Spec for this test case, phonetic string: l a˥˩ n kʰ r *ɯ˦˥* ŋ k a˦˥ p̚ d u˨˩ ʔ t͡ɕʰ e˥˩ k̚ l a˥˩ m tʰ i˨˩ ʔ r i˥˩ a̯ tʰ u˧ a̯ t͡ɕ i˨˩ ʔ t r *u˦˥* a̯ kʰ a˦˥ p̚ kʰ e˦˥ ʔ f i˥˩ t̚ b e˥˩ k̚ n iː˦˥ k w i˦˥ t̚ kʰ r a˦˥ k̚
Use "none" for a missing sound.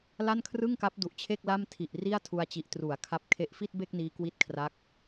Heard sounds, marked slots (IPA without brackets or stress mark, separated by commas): ɯ˥˩, u˩˦